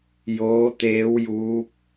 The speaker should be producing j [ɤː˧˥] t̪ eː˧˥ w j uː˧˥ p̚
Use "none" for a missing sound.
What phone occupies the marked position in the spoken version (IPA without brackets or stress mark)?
oː˧˥